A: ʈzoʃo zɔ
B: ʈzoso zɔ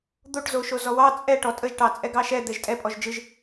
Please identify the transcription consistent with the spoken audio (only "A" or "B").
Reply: A